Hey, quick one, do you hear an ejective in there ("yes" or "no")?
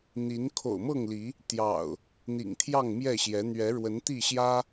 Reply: no